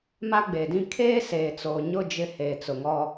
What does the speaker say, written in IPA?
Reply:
m a˦ ɡ͡b eː˨ d ĩ˦ kʰ eː˦ s eː˨ t͡s oː˨ ɲ ʊ˦˨ d͡ʒ ɪ˦ h eː˨ t͡s ʊ˨ ŋ ɔ˦

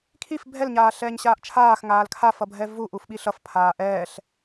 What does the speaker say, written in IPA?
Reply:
kʰ i f bʱ ɛ l ɲ aː ɬ ɛː ɲ ɕ aː ʔ t͡ʃʰ aː x ŋ aː l kʰ a f ʌ bʱ ɛ v u ʔ u f ɓ i ɬ ʌ f pʰ aː ʔ ɛː ɬ

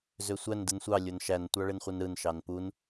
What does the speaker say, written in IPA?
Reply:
z ø sʷ æ n d ɯ n sʷ ɑ lʲ o n ʃ æ n tʷ ɑ ɭ e n χʷ ɯ n ɾ ɯ n ʃ ɑ n p u n

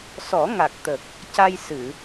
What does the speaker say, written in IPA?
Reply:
s ɔ˨˩˦ ŋ a˨˩ k̚ t̪ ə˨˩ k̚ | c a˧ j s ɨ˨˩˨

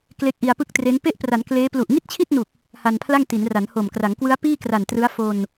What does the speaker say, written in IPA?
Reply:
k l e˦˥ k̚ ʔ i˧ a̯ p ɯ˥˩ k̚ t r e˦˥ n p e˦˥ ʔ p r a˩˦ n k l eː˦˥ p l u˨˩ ʔ ŋ i˥˩ t̚ t͡ɕʰ i˥˩ t̚ n u˨˩ k̚ | h a˧ n pʰ l a˥˩ ŋ t i˩˦ n r a˩˦ n h o˨˩ m k r a˩˦ ŋ k w ɯ˦˥ a̯ p iː˥˩ k r a˨˩ n t r ɯ˦˥ a̯ f o˧ n

